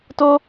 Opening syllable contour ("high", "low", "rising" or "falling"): high